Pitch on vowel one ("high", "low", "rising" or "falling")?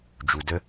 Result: low